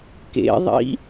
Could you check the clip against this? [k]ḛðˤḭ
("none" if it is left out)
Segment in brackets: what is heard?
k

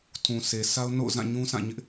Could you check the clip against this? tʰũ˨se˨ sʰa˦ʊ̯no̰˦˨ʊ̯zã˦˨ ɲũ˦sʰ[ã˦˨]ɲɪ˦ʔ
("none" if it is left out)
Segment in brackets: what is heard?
ã˦˨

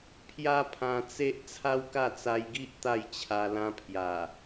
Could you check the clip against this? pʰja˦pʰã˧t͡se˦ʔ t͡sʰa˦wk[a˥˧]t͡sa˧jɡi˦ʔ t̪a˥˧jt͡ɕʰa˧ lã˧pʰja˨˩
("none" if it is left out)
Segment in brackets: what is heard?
a˥˧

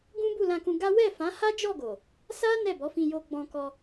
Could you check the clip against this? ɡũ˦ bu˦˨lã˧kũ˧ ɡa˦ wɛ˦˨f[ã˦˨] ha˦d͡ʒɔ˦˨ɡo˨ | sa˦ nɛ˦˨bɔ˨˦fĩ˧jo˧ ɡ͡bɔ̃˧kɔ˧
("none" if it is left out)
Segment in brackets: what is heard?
ã˨˦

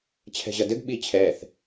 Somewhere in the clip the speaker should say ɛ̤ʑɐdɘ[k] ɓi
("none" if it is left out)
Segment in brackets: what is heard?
ɡ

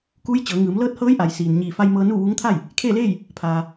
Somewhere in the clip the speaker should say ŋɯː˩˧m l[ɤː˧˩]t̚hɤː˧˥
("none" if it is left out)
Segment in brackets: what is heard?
ɤː˥˨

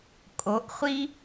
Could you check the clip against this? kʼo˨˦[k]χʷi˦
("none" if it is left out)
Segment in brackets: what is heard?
ʔ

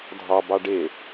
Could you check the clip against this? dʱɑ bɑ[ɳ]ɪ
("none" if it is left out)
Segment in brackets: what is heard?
ɖ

